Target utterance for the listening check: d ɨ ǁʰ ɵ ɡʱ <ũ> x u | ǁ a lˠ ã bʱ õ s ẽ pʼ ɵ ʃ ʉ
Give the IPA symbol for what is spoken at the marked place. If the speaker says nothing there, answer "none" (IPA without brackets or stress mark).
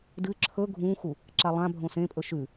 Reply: ũ